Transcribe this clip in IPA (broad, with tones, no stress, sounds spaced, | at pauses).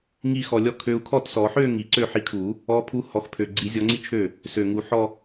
ŋ i˥˧ x ɔ˧ lʲ ɔ˥˩ kʰ ø˧ u̯ kʰ ɔ˥˩ t s ɔ˨˩˦ ħ ø˥˧ ŋ i˨˩ ǀ ø˥˩ ħ i˧ kʰ u˨˩˦ | ɔ˨˥ pʰ u˨˥ h ɔ˨˩ x pʰ ø˨˩ ɡ͡ǀ i˨˩˦ zʲ ɔ˨˥ ŋ͡ǀ i˥˧ t͡ʃʰ ø˥˩ | s ø˨˩ ŋ u˨˩˦ ħ ɔ˥˧